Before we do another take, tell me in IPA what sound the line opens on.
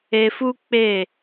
e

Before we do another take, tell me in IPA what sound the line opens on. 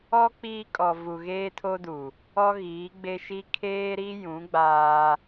ɔ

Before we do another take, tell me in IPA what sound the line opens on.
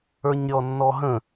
ə˞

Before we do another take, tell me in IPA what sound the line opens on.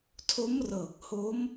tʰ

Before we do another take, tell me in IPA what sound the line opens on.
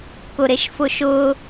k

